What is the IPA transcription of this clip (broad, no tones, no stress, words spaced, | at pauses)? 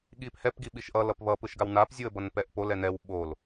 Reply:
ɠiphɛp ɡiɓiʃʔʌ lʌpβʌ pɯʃɡawnap zʲuə̯bʌnpɛʔpol ɛnɛw ɓol